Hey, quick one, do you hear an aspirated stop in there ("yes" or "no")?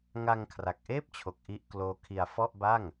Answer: yes